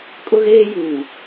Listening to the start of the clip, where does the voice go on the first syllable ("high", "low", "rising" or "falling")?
high